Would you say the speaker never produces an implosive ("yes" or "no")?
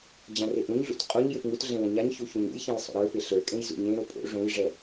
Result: yes